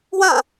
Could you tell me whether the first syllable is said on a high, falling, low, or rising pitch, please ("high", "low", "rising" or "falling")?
falling